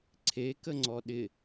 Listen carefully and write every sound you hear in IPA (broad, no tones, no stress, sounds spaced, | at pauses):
ǀʰ e k ə ŋ͡ǀ ɔ ɗ ɪ